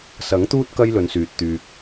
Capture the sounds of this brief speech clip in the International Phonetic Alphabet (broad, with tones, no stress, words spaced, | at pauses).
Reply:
sɐ˨˥ŋt̪uː˥t̚ kɐ˥jlɵ˨˧nsyː˨t̚ t̪yː˨k̚